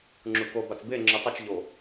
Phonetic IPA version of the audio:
ŋ͡ǁ u k o b a t͡s b e ŋ͡ǁ ɯ tˤ i t͡ʃ ʎ o

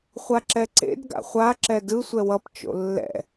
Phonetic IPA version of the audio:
χʷ a ǁ ɛ ǀ ḛ d ɡ a̰ χʷ a ǁ ɛ d ɯ sʷ ɛ w ʌ p t͡ʃ o̰ lː ɛ̰

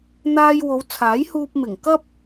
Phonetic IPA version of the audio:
n̪ aː˧ j w o˨˧ w t͡sʰ aː˨˥ j h uː˧ p̚ m ɪ˨˩ ŋ k ɐ˥ p̚

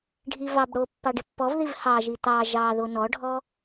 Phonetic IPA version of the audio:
ɖʱ i v ɑ b ɽ o pː ɑ ɖ ɪ pː ɔ v ð i v h ɑ ʒ i t̪ ɑ ʒ ɑ ð o n ɔ ɖʱ ɔ

